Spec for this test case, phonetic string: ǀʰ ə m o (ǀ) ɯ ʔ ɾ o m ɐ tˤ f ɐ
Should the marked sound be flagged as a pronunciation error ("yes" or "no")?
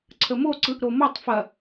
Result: no